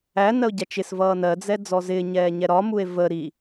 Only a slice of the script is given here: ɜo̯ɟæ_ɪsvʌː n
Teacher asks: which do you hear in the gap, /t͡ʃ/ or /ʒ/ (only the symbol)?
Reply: t͡ʃ